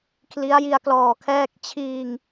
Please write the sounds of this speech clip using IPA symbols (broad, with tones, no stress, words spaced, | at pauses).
kʰli˦˥a̯ji˧a̯klɔː˨˩kʰɛː˥˩k̚ t͡ɕʰiː˧ŋ